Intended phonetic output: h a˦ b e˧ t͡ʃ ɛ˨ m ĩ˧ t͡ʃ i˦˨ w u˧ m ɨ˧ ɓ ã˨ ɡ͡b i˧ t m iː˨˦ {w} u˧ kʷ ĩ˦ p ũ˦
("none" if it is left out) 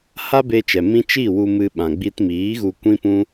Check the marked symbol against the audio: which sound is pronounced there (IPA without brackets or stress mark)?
ɣ